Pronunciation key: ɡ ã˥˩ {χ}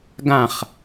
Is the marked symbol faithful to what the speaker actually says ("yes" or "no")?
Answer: yes